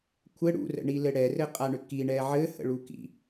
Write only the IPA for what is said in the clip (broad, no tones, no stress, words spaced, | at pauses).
kʷʰɘ ɽṵrə̰ɳilɘ ɽɛrɘqʼaɳʏ kiɳɛ ʕɘhə̰ɭukḭ